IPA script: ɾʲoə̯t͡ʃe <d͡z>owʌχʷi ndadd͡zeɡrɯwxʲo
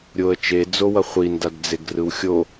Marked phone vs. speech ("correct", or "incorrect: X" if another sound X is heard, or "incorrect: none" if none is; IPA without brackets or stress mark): correct